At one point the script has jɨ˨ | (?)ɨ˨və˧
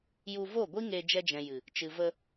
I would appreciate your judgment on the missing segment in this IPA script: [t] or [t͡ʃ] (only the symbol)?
t͡ʃ